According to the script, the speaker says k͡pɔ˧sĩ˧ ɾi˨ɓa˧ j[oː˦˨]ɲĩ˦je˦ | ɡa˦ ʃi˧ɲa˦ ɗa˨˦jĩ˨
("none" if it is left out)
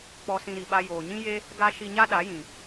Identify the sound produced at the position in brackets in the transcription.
oː˨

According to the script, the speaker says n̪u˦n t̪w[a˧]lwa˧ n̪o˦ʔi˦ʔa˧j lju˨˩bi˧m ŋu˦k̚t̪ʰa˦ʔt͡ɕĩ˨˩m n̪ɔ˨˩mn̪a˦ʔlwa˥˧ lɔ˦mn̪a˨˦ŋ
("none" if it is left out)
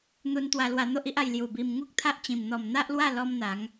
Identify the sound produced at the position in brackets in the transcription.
a˧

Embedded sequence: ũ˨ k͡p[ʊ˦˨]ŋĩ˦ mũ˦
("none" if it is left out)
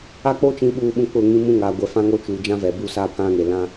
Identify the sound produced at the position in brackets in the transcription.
ʊ˦˨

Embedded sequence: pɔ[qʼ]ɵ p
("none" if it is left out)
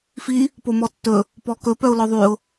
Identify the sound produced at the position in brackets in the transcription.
k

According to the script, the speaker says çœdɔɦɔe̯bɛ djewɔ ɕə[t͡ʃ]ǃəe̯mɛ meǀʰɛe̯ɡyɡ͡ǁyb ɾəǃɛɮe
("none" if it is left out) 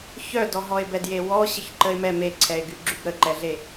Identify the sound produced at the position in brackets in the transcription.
ç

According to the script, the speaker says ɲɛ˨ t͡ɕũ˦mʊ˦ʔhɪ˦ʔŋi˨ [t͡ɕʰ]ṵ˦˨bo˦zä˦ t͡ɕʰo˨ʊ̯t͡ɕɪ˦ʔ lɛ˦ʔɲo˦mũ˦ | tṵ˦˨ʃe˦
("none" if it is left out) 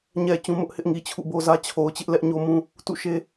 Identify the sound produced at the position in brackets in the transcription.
t͡ɕʰ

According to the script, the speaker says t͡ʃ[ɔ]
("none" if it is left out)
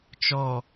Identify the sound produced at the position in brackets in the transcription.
ɔ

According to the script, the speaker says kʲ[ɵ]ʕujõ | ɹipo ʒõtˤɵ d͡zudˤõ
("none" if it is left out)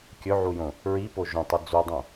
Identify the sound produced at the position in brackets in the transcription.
ɵ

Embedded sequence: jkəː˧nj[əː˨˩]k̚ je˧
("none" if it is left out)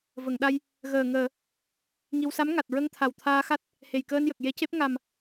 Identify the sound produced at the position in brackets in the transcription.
ə˨˩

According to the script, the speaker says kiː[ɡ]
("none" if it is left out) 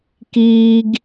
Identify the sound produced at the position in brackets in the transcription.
ɡ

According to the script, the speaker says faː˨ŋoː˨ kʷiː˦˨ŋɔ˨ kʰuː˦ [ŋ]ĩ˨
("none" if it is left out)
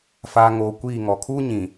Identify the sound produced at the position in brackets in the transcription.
ɲ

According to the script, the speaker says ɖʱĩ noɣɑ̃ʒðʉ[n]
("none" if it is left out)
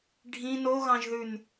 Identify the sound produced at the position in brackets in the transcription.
n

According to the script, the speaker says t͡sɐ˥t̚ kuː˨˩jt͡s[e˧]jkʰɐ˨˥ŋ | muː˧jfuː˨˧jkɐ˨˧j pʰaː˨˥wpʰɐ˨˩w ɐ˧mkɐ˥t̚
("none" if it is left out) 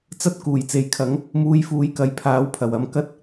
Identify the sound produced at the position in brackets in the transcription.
e˨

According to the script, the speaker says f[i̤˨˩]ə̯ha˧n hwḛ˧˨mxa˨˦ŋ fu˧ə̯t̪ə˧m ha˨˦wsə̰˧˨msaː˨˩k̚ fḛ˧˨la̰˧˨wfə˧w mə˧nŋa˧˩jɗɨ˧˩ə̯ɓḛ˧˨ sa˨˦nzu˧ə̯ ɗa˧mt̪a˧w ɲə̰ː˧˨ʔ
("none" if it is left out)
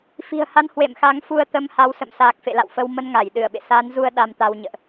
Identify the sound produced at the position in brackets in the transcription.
i̤˨˩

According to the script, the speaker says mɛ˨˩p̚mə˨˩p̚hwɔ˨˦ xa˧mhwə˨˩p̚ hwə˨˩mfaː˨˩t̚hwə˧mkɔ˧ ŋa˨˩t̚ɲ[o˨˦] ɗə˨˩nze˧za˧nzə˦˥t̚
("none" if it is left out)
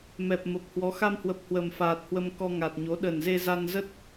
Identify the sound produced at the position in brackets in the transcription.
o˨˦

